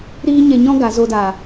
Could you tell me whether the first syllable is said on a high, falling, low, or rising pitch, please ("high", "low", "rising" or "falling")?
high